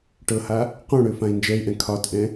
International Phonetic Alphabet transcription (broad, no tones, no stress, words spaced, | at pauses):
ʈɤha | qũɽø fãi̯nd͡ʒɛi̯ʔɛ̃ kʰɒtʔɛ̃